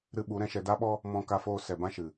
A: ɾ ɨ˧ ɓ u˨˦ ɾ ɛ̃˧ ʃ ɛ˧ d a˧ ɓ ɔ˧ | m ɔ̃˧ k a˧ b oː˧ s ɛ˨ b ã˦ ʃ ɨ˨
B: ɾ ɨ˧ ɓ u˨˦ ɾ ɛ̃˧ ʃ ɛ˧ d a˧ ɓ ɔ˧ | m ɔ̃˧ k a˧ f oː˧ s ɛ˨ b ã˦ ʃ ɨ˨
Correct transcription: B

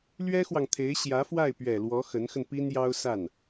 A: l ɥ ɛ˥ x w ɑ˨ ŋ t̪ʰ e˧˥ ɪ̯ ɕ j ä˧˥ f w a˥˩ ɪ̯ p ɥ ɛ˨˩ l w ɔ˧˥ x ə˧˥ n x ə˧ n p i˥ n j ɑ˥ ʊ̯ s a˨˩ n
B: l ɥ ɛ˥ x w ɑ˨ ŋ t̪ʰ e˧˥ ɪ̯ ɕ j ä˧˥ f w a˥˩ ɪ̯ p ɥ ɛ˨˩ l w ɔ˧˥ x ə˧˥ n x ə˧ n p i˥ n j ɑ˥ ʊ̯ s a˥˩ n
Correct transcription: B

